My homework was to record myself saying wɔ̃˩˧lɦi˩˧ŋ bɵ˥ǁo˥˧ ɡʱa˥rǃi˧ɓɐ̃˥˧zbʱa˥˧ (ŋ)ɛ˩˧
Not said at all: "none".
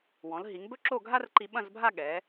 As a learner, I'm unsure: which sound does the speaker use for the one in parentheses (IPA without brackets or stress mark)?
ɠ